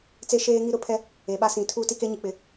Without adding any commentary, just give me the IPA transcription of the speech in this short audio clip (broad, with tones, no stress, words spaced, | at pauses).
t͡se˦ʃeː˦ŋi˦ ɾʊ˦pʰɛ˦ | e˨ɓa˦sĩ˨˦ tʰuː˦ti˦ ke˦ɲi˨k͡pɪ˨˦